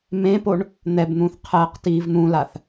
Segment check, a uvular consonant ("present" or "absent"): present